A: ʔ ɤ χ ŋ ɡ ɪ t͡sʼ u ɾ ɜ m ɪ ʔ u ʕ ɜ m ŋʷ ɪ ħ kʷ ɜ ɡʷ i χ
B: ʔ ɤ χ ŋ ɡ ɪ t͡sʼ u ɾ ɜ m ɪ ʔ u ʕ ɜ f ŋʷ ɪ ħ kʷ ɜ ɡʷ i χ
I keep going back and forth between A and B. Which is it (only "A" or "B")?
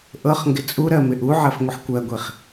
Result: B